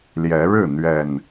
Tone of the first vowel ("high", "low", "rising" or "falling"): rising